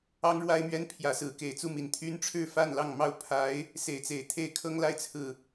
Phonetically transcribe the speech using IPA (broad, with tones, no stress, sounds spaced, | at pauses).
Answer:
ɑ˦ ŋ ɻ w a˦ ɪ̯ m ɥ ɛ˦ n pʰ j ä˨˦ s ɹ̩˨˦ k e˨˩ ɪ̯ t͡s u˥˨ m i˨˩ n t̪ʰ y˦ n ʈ͡ʂʰ ɻ̩˥˨ f a˥˨ n l ɑ˥˨ ŋ m ɑ˥˨ ʊ̯ pʰ a˨˦ ɪ̯ | s e˨˦ ɪ̯ t͡s e˨˩ ɪ̯ t̪ʰ e˥˨ ɪ̯ kʰ ɤ˦ ŋ l a˦ ɪ̯ t͡sʰ ɹ̩˨